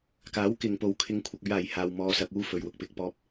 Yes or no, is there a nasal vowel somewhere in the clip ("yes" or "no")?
no